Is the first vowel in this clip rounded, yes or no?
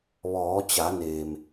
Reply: yes